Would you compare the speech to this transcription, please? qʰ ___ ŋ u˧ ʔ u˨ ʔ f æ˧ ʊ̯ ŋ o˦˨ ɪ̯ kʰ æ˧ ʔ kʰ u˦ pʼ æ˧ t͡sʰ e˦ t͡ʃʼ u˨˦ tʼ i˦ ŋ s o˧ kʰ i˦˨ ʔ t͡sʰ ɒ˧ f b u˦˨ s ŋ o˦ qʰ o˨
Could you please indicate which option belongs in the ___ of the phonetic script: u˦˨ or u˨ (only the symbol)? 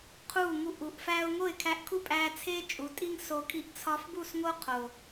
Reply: u˦˨